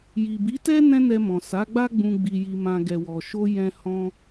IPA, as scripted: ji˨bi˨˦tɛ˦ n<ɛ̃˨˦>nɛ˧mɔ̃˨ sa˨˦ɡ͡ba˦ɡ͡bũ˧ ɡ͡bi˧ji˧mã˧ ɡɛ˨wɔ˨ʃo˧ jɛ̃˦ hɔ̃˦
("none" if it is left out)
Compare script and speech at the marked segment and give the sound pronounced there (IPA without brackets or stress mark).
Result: ɛ̃˦